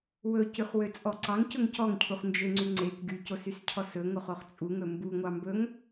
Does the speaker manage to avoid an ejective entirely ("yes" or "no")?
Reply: no